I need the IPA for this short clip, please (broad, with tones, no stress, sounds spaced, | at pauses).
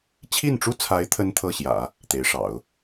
t͡ɕʰ i˥˩ n ʈ͡ʂ u˥ t͡sʰ a˧˥ ɪ̯ t̪ʰ ə˥ n t̪ʰ ɤ˥˩ ɕ j ä̰˨˩˦ | t̪ e˧˥ ɪ̯ ʂ ɑ̰˨˩˦ ʊ̯